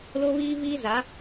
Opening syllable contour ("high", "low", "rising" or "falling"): high